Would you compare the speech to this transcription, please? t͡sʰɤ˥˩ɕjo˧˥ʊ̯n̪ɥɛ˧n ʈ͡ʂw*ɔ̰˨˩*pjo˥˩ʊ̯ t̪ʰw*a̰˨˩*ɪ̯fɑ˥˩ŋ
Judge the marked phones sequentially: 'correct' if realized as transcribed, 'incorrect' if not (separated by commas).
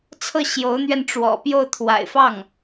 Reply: correct, correct